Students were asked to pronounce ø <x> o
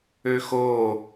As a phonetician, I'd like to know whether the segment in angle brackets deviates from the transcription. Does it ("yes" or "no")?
no